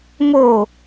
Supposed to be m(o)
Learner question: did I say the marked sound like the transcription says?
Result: yes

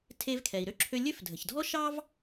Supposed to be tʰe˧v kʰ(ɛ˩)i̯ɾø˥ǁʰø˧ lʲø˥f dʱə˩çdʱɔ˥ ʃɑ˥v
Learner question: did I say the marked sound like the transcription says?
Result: yes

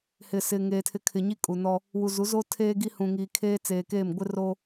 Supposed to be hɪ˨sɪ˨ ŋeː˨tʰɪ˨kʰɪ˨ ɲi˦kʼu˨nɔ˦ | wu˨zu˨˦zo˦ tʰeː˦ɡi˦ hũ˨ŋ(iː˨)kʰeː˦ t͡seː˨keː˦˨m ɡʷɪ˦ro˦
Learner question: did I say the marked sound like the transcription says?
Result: yes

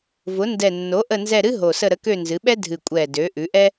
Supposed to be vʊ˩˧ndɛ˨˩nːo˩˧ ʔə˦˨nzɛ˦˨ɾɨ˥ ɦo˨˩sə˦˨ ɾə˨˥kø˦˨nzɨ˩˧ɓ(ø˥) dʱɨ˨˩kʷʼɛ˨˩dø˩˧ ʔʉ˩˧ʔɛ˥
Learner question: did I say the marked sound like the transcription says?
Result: no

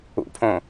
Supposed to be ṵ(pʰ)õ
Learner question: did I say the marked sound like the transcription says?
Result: yes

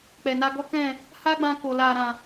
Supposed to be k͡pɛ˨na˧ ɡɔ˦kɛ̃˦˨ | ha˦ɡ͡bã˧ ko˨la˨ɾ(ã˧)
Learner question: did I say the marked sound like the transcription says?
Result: no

